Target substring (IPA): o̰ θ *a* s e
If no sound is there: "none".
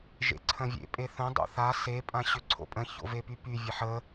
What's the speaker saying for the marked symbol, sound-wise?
a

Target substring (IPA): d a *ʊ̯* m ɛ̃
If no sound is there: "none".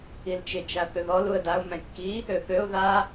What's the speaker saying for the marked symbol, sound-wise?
ʊ̯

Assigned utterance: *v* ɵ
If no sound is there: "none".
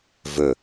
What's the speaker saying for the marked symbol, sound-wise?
v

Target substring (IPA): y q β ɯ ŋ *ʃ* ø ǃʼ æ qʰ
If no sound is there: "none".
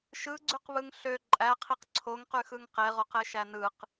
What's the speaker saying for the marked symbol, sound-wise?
ɬ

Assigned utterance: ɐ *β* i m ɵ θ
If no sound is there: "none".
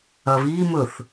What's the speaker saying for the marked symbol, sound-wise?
β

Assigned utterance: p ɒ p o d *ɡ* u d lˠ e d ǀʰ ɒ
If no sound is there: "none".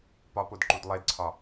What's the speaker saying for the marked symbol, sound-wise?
ǃ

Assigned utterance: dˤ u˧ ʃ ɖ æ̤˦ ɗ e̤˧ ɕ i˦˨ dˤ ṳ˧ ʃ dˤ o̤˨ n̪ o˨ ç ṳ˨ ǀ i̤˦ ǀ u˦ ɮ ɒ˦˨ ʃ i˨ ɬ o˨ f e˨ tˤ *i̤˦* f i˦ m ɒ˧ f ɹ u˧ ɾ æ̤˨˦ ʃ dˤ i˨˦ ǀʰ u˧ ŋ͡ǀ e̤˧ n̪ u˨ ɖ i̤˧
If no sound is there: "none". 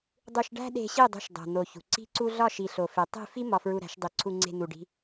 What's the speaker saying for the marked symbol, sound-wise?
i̤˦˨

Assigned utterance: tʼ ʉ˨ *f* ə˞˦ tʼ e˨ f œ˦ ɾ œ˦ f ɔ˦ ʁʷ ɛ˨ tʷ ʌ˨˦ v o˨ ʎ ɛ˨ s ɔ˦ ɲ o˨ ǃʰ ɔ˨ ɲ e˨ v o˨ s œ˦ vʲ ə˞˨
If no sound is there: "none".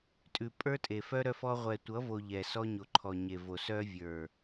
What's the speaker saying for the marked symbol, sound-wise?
pʼ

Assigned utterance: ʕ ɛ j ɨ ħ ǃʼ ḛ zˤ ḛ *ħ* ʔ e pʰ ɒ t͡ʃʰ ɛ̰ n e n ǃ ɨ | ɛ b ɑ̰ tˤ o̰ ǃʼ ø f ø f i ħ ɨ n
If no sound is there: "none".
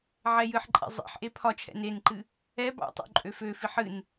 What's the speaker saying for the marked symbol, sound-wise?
ħ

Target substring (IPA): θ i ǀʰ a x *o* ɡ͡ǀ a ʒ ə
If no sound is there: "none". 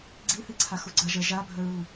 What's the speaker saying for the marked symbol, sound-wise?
u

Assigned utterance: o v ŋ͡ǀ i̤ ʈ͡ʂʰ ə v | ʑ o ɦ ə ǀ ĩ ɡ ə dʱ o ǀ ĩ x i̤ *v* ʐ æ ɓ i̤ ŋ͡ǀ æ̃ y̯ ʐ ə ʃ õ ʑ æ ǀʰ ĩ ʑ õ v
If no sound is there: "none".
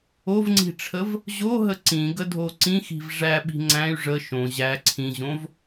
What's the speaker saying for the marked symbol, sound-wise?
v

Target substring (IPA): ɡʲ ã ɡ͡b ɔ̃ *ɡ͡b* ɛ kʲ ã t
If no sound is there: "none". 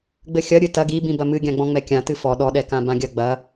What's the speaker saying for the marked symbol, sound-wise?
ŋ͡m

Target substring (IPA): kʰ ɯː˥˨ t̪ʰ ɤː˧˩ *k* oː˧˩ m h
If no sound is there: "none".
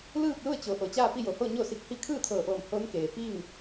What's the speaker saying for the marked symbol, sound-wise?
ʔ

